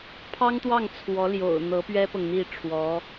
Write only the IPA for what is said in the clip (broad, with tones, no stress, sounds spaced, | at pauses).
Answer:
pʰ ɑ˥ ŋ t̪ w ɑ˥˩ ŋ t͡sʰ w ɔ˧˥ l j o̰˨˩ ʊ̯ n̪ ɤ˧˥ p ɥ ɛ˥ p ɤ˨ ŋ n̪ i˥˩ ʈ͡ʂʰ w ɔ˧˥